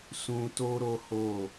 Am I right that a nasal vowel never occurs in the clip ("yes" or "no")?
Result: no